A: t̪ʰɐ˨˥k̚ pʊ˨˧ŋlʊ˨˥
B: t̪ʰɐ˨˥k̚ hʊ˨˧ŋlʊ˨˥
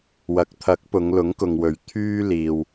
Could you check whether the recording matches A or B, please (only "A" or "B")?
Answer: A